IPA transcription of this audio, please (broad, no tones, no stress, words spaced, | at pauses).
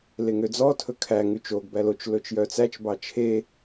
leŋød͡zɔ tʰɵkʰæ ŋʉt͡ʃoɡ bælot͡ʃ lɵt͡ʃjœt͡sæt͡ʃ bɑt͡ʃʰe